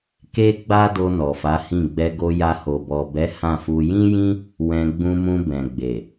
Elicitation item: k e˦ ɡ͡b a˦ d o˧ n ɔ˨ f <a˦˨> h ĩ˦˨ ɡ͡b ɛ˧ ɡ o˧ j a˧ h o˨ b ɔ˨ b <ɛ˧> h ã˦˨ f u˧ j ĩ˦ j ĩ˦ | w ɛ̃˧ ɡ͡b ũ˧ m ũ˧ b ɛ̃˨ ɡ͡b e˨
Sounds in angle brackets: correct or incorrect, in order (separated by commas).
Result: incorrect, incorrect